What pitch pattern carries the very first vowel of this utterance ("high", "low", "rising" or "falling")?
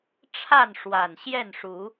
falling